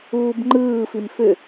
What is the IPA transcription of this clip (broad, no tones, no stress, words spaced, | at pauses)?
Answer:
uːbŋ͡ǃɯː fimfʏ